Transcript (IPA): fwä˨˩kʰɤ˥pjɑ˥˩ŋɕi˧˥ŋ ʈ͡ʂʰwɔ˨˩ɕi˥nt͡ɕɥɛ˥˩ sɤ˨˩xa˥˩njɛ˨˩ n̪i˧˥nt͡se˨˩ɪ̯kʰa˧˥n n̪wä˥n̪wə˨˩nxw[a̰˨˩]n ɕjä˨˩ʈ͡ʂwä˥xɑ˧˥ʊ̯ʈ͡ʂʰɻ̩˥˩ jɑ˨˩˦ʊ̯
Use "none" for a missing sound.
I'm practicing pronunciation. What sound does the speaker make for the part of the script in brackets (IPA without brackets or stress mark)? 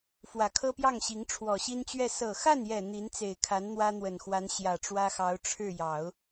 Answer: a˧˥